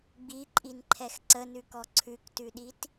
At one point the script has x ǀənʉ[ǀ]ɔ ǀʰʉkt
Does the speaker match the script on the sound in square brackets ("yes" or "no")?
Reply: no